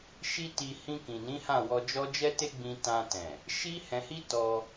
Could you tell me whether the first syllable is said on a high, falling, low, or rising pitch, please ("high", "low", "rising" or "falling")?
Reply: high